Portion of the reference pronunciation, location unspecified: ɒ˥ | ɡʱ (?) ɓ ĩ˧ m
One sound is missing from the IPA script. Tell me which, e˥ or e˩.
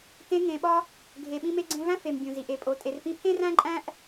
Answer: e˩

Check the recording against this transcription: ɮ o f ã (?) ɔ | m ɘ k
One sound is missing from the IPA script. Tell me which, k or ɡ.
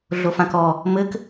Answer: k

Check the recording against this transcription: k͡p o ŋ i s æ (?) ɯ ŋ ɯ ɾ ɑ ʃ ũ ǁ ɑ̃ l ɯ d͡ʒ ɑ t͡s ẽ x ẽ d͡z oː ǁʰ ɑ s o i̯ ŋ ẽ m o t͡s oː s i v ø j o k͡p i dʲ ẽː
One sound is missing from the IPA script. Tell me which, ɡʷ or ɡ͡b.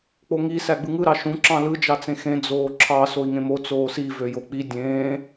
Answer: ɡ͡b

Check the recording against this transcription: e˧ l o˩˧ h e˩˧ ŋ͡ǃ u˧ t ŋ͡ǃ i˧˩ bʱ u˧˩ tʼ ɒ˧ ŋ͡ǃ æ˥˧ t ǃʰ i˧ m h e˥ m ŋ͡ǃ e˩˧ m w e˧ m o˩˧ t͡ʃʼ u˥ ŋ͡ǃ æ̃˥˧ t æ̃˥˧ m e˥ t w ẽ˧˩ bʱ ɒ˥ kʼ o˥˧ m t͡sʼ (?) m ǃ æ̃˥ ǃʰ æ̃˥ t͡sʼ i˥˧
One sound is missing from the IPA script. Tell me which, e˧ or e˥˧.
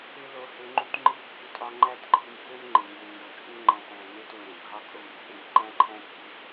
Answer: e˥˧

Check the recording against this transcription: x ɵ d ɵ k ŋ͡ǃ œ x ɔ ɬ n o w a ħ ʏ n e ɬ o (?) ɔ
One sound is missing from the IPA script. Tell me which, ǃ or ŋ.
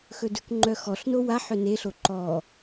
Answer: ǃ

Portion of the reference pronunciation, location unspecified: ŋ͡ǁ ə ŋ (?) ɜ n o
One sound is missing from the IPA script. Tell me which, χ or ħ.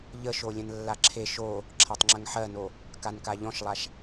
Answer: ħ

